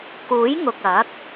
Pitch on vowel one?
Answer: rising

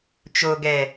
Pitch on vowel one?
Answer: low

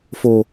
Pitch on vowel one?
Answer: low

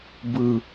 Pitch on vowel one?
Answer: low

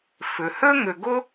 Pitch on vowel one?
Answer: low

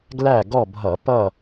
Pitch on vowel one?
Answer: falling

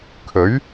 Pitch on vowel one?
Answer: rising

